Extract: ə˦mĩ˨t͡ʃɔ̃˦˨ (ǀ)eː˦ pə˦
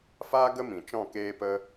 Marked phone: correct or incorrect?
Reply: incorrect